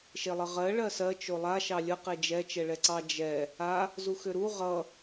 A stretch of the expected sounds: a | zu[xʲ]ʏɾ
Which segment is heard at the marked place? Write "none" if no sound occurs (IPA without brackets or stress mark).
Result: x